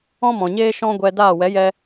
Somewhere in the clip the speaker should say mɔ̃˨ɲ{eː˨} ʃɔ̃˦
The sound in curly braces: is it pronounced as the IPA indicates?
no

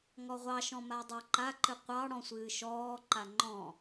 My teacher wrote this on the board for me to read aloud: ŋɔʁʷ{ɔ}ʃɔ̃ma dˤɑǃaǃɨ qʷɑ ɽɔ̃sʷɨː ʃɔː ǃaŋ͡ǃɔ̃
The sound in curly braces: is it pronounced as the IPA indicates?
no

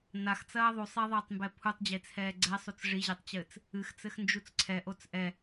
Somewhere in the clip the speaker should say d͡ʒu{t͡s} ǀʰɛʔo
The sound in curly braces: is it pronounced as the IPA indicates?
yes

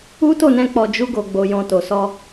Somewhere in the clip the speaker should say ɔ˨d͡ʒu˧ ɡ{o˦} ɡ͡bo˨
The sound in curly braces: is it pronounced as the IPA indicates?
no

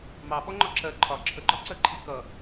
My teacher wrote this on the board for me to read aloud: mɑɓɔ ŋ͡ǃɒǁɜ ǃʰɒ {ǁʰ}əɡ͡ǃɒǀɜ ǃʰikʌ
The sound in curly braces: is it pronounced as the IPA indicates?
yes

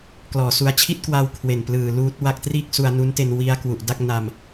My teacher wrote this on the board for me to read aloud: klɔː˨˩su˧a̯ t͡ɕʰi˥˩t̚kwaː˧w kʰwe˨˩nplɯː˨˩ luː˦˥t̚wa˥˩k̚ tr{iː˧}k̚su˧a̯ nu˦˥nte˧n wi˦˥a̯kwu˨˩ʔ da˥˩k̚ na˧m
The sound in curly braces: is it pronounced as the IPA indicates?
no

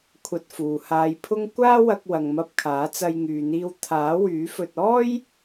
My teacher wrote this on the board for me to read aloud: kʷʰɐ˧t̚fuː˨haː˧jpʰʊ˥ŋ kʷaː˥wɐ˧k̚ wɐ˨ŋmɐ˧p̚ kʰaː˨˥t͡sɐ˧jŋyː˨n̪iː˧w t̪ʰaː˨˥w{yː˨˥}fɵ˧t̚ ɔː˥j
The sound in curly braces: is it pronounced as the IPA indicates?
yes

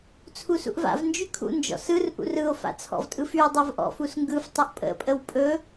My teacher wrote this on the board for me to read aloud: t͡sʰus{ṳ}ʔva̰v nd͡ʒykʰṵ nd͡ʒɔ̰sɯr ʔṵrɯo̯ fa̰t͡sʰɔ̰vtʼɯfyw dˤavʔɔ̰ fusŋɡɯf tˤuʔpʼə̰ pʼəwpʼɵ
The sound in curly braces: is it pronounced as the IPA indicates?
no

